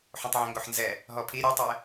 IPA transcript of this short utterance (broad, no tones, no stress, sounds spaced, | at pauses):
ħ õ tˤ ʕ ɛ̃ ŋ ɡ o ħ n z ɛ | ɦ ɔ pʰ i ɾʲ u tˤ ɛ